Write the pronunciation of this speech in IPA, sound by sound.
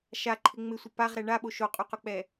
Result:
ʃ a ǃʰ ɪ ŋ͡m ɪ sʷ ɪ p a ʁ ɾ ɛ ɳ a ɓ o ʃ o qʼ u q ʊ k͡p ɛ

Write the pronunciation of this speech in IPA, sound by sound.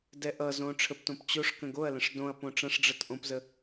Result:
d ɛ ʔ ʌ z õ ʈ͡ʂʰ ə p t õ p t͡ɕ o ʂ k ə̃ ɡ o ɐ̯ l ə̃ ʂ d õ ɐ̯ p õ ʈ͡ʂ ɐ̃ ʂ ɖ͡ʐ ʌ t ʔ õ p z ə

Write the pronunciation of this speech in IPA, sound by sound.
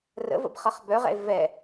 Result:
r ə̰ v ə̰ b χ ʌ χ b œ ʁ ɛ̰ e̯ v ɛ

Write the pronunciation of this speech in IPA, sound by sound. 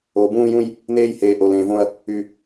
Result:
o˨ b ũː˦ j ũ˦ j | n eː˦ j h eː˨ ʔ o˨ l ẽː˨ v õ˦ ɐ̯ | y˨

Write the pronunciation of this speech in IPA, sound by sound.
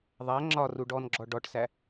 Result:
ðˤ æ ŋ͡ǁ ɒ r u ɖ ɔ n ɡ͡ǁ ɔ ɖ ɔ ʈ s æ

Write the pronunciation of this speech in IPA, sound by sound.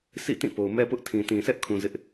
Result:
sʰ ḭ˦˨ t ĩ˦˨ p o˨ ʊ̯ m ɛ˦ p ʊ˦ ʔ tʰ ĩ˨ t ĩ˨ sʰ ɛ˦ ʔ kʰ ũ˨ z ɪ˦ ʔ

